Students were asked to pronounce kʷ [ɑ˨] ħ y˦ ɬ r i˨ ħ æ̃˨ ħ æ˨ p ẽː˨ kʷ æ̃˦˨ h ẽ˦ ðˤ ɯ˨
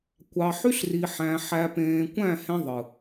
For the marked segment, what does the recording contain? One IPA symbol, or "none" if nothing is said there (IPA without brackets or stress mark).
ɑ˨